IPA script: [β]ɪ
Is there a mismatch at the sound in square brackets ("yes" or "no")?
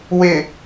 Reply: yes